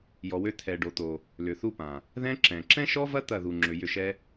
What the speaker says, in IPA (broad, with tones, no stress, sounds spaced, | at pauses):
j ɔ˨ w ø˧ t̪ʰ ɛ˨ ɖ o˨ t̪ o˨ | l ʏ˨ θ u˧ p ã˨ | ð ɛ̃˦ ǁ ɛ̃˨ ǁ ɛ̃˦ ʃ ɔ˦ v ɐ˦ t̪ ɐ˦˨ ð u˨ ŋ͡ǁ ʏ˨ j ʏ˦˨ ʃ ɛ˦